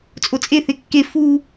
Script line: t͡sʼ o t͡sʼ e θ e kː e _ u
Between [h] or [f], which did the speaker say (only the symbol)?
f